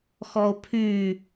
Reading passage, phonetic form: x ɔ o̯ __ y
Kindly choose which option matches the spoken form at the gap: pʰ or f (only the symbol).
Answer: pʰ